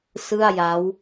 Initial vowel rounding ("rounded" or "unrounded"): unrounded